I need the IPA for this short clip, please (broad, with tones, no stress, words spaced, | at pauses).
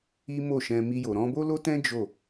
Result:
i˦mo˦˨ʃɛ̃˧ mi˧jo˨ ɾɔ̃˧bo˦lo˦tɛ̃˦ d͡ʒo˦˨